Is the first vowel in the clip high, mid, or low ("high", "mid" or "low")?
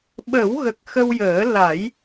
mid